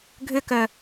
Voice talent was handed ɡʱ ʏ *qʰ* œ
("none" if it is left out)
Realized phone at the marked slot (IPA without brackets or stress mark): k